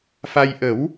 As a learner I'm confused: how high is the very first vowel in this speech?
low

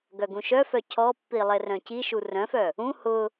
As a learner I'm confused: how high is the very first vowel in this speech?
mid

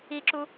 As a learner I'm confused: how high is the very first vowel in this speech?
high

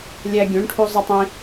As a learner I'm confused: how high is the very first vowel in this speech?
low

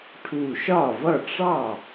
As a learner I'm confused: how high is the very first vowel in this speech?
high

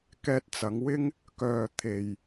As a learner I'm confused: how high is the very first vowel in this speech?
mid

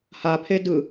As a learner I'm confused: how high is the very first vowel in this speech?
low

